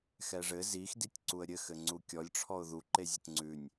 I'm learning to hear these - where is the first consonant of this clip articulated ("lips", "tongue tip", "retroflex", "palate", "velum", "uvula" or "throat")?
velum